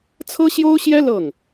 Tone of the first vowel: high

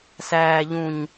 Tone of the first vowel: low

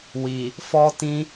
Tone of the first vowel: low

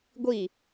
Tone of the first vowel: falling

